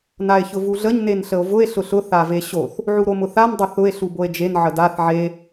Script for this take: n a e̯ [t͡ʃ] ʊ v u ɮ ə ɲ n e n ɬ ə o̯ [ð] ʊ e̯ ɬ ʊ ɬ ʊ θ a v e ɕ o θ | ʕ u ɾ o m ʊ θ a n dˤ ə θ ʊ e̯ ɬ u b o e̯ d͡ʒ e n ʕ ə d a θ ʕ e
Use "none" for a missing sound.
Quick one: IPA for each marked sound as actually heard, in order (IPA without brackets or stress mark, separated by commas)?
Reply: ç, v